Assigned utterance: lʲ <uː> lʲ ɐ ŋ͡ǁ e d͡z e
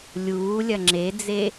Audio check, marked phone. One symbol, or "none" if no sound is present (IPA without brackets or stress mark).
uː